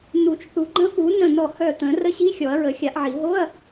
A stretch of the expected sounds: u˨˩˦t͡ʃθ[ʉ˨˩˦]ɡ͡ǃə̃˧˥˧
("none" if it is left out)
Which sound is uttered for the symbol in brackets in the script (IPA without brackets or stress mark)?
u˨˩˦